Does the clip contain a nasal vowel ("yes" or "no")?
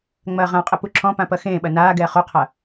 yes